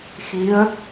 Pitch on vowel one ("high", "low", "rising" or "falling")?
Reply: rising